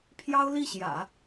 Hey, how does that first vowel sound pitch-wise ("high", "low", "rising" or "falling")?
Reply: high